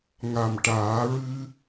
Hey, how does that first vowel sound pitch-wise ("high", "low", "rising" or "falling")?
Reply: low